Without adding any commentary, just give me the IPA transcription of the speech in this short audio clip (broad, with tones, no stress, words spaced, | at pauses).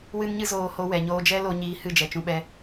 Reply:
wɨ˦nɲɨ˦zoː˧ ho˧wɛ˨ ɲoː˧d͡ʒɛ˦ lo˧ɲiː˧ hɨ˦˨d͡ʒɛ˨t͡ʃũ˧ɓɛ˧